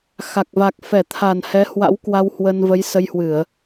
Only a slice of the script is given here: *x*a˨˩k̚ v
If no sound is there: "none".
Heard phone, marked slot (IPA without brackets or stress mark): x